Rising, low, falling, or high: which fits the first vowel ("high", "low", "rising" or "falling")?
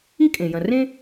high